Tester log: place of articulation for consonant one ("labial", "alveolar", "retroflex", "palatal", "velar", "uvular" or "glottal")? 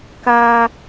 velar